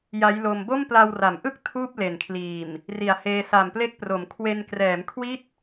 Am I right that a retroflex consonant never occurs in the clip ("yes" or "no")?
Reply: yes